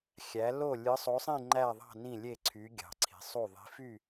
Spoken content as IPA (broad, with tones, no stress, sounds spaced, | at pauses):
xʲ æ˩˧ l o˧˩ lʲ ɯ˩˧ sˤ o˩˧ sˤ ĩ˧˩ ŋ͡ǃ æ˧˩ ðˤ ɑ̤˧˩ n ĩ˧˩ lʲ e˧˩ ǀʰ y˩˧ ɡʲ ɑ̤˩˧ ǀʰ i̤˩˧ sˤ u˧˩ ðˤ i̤˩˧ f y˧˩